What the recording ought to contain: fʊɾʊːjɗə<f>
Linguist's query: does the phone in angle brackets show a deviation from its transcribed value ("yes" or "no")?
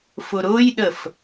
no